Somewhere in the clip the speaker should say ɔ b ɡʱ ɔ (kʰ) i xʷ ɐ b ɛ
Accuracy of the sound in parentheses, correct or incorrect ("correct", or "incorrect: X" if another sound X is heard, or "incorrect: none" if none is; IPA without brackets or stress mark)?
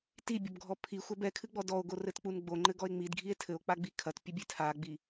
incorrect: pʰ